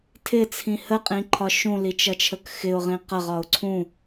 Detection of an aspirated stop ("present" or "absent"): present